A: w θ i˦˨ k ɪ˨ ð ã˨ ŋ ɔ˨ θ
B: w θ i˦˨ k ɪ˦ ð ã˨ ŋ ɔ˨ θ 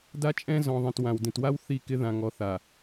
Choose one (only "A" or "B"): B